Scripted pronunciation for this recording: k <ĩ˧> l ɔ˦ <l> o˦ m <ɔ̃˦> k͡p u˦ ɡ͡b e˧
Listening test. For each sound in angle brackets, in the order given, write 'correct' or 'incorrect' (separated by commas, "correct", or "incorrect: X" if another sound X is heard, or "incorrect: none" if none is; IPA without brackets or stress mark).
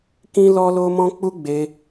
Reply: incorrect: ĩ˦, correct, correct